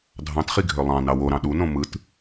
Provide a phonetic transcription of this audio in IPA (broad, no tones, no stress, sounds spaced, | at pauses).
dʱ ɑ̃ t χ i ɡʱ ø lˠ ɑ̃ n ɑ w o ɾ ɑ̃ ɗ u n õ m ɯ t